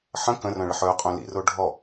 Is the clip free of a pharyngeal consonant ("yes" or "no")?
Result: no